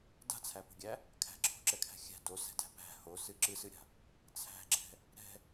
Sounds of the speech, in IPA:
d a̤ t͡sʰ æ p o̤ ɡʲ æ | kʰ æ̤ ǁʰ o̤ ǁ ɛ kʰ æ̤ xʲ æ̤ d o s ɛ̤ d æ̤ p æ̤ h o s ɨ ǁ ɨ s ɨ ɾʲ a̤ | t͡sʰ æ̤ ɡ͡ǁ ɛ̤ | ɾ ɛ̤

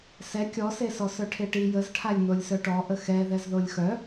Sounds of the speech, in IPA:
s ɛ kʲ ɔ s e s ɔ s œ ʈʰ e ʈ i j ə z ʈʰ a lʲ n o lʲ s œ ʈ ɔ ʔ ə x ɛ ð ɛ z ð o lʲ x œ

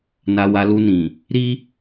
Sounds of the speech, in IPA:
n a˧ w a˧ l u˧ n ĩ˨ | ɾ i˦

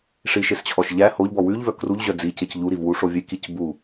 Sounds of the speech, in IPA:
ʂ i ʃ e s t͡ɕʰ ɔ ʃ ʎ æ h o ʎ b ɔ w ʉ ʎ v œ k r u ʎ ʑ œ d͡z i c e c ʎ u ɾ i v w u ʂ o vʲ e k i c b u

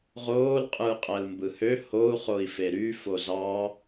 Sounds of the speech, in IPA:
ʁ oː l qʼ ɯː qʼ æ l m b ɯ h ø h o u̯ χ o i̯ f e ɾ y f o z ɑ

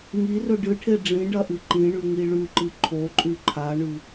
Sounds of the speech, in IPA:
ŋ i r ɵ ɖ ɨ ʈʰ e ɖ͡ʐ ĩ ɖ ɐ ʔ ɨ ǃ ĩ ɳ ʉ ŋ i ɭ ʉ ǃ ɨ ǃʰ o ǃʼ ʉ ǃʰ a ɳ ʉ

